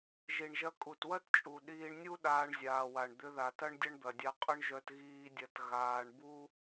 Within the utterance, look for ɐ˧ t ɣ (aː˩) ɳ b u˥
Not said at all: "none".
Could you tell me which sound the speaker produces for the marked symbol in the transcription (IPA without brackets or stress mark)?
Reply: aː˧